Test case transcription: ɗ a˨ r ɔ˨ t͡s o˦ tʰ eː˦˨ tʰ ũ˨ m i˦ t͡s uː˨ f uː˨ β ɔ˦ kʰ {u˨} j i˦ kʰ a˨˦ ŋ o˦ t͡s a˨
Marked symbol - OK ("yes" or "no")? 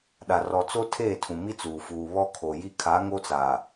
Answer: no